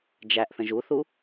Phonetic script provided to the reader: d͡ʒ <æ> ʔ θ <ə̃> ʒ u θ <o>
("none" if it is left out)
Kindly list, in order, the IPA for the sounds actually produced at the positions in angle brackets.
æ, ə̃, u

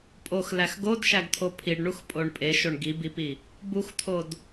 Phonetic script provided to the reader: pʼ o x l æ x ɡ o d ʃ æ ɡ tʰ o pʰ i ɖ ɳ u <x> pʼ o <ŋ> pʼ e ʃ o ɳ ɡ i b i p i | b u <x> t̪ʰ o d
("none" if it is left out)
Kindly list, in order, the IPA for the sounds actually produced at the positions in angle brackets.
x, ɳ, x

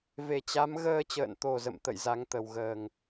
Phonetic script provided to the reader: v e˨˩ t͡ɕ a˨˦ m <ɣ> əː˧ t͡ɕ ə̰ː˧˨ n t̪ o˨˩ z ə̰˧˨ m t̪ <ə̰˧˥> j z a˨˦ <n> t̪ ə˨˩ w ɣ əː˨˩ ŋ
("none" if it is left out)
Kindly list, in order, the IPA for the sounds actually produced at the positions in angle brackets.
ɣ, ə̰˧˨, ŋ

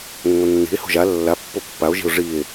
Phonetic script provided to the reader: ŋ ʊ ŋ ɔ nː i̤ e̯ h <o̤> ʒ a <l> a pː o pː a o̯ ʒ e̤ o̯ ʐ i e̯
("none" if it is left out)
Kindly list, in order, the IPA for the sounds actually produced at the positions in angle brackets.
o̤, lː

